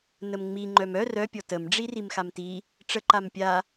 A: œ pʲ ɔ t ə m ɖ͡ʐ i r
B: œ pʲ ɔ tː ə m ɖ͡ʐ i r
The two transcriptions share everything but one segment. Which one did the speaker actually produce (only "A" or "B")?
A